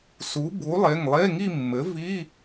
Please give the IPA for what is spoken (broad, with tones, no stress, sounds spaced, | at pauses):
s u˩˥ b u˩˥ lˠ e˩˧˩ ŋ lˠ e˧˥˧ ŋ i˥˧ mː ɘ˩˥ v i˧˥˧